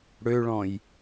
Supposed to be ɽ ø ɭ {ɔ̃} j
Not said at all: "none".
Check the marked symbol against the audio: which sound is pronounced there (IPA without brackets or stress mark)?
ɔ̃